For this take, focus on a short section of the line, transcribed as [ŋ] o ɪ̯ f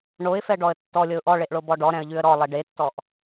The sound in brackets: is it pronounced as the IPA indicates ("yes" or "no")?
no